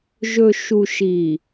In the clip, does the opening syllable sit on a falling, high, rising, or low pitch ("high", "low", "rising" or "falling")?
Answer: low